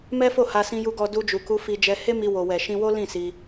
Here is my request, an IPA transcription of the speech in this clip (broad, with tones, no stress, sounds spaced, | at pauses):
m ɛ˦ f o˦˨ h a˧ s ĩ˧ j u˧ ɡ ɔ˧ d u˧ d͡ʒ u˨ k u˧ f i˧ d͡ʒ ɛ˧ h e˦ m i˧ w o˨ w ɛ˨ ʃ ĩ˧ w o˦ l ĩ˦˨ s i˧